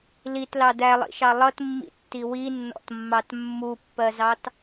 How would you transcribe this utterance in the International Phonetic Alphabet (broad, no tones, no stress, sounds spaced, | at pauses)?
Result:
l i t l ɑ d æ lˠ ḭ ʃ ɑ lˠ ʌ t mː ḭ tː i w i nː ɔ̰ t mː ɑ t mː u pː ɜ z ɑ t